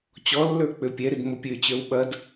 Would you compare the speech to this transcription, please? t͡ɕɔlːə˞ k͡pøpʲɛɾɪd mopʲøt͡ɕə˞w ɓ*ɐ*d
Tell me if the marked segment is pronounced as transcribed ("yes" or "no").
yes